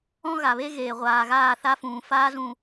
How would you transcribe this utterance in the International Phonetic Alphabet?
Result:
ɔ̃˦ ɣ a˨ β e˦ ɣ eː˨ ʁʷ aː˨ ɣ aː˦˨ θ a˦ f ũː˨ f aː˦ z ũ˨

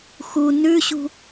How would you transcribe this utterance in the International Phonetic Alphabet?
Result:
x u n ʉ ɕ ṳ

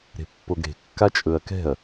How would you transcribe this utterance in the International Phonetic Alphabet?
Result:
ɾ e̤ pː o ɡ ɾ e̤ kː a t͡ʃʼ ɵ ɐ̯ k ɛ̤ ɐ̯

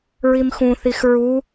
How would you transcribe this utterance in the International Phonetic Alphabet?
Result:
ɹ i m x ũ θ i x ɹ u

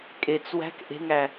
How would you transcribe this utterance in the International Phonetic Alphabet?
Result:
kʼ e t͡s w æ̤ k ʔ e̤ ŋ æ

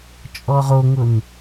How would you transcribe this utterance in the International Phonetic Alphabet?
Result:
t͡ʃʼ ɔ ʁ o ŋ ʊ n

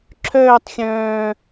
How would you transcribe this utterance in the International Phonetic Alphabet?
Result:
ǁʰ œː tˤ xʲ œ̃ː

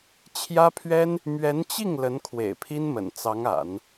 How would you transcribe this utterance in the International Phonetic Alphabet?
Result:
t͡ɕʰ j ä˥ pʰ ɥ ɛ˥ n | m ɥ ɛ˧˥ n t͡ɕ i˥˩ ŋ l ə˧˥ n kʰ w ḛ˨˩ ɪ̯ pʰ i˥ n m ə̰˨˩ n t͡s ɑ˧˥ ŋ a̰˨˩˦ n

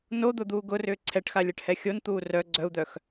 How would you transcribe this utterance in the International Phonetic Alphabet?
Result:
n o d̪ ʊ d̪ uː ɡ ʊ r ʏː ǀʰ ɛ ʈ x a lʲ ɛ ʈ h ɛ xʲ o n t̪ uː r œ ɡ͡ǀ œ u̯ d̪ œ x

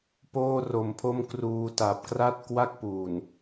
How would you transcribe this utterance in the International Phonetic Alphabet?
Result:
p oː˥˩ r o˧ m pʰ o˥˩ m k r uː˧ t a˨˩ p̚ k r a˥˩ t̚ k w a˥˩ k̚ p uː˨˩ n

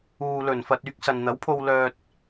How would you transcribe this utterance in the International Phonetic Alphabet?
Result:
uː˨ l ɵ˨˩ n f ɐ˨ t̚ yː˧ k̚ s ɐ˨ n n̪ ɐ˨˥ w pʰ o˧ w l œː˧ t̚

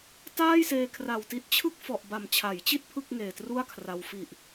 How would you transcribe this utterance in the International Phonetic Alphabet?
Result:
t aː˥˩ j s eː˧ kʰ r a˨˩ w t i˦˥ t̚ t͡ɕʰ ɯ˥˩ k̚ f ɔ˨˩ ʔ b a˨˩ m t͡ɕʰ a˩˦ j t͡ɕ i˥˩ t̚ pʰ ɯ˥˩ k̚ ŋ eː˨˩ t r u˥˩ a̯ kʰ r a˧ w f i˨˩ ʔ

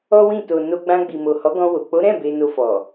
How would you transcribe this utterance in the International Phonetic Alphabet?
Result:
ɔ˦ w ĩ˦˨ t o˨ n o˧ ɡ͡b ã˧ ɡ͡b i˨ m o˨ h ɔ˨˦ ɡ ɔ̃˧ w o˨ k͡p o˨˦ ɾ ɛ̃˦˨ b e˧ n o˧ f ɔ˨

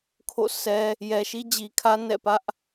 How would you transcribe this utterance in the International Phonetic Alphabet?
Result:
kʰ o̰˦˨ sʰ ɛ˦ | j ɛ˨ ʃ i˦ d͡ʑ i˨ kʰ ä˦ n ɛ̰˦˨ p ä˦ ʔ

